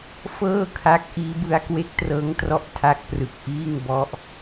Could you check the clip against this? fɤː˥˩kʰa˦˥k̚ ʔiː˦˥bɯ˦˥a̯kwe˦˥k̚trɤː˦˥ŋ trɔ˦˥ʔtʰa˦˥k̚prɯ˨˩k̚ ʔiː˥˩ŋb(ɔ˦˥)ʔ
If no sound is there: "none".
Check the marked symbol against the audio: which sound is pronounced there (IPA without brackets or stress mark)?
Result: ɔ˦˥